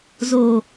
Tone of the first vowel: low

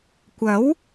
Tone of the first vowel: rising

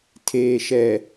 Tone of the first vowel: low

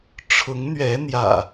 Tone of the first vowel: rising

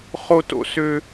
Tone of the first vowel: high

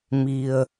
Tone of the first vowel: low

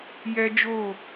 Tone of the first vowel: high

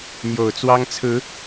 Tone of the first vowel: low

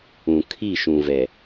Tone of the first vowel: low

